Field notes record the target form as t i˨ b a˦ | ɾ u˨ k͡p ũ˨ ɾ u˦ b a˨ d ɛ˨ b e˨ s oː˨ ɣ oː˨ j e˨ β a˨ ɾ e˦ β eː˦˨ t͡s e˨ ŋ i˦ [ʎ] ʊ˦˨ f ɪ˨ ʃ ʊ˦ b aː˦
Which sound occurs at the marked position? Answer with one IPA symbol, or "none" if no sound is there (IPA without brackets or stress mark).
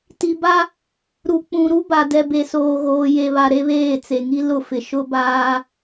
l